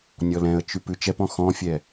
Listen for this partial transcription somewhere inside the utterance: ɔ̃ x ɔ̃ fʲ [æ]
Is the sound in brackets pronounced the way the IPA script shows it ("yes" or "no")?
no